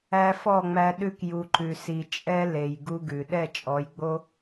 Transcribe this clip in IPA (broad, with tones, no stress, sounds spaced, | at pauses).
æ˧ f ɔ˦˨ ŋ͡m æ˧ ɗ ʉ˧ k j u˨ ǃ ʉ˨ s i˨ t͡ʃʼ ɛ˦ l e˨ j ɡ u˦ ɡ ʉ˨ ɗ ɛ˦˨ t͡ʃʼ ɔ˨˦ j ɡ͡b o˦